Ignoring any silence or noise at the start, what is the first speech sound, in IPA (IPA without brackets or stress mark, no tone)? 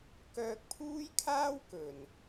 k